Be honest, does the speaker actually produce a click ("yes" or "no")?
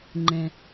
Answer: yes